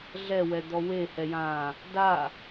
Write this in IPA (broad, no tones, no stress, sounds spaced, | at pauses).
ɮ ɛ w ɛ d̪ ɔ w e h ɛ j ãː | d a